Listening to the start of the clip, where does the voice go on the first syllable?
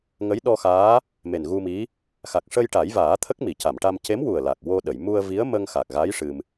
rising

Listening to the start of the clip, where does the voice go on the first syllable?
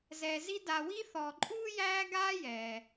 low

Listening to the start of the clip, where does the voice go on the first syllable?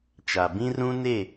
low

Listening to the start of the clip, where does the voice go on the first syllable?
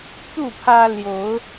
falling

